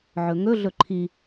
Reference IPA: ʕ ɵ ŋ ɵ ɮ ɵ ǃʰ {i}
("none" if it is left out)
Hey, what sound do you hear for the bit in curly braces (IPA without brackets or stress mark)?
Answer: i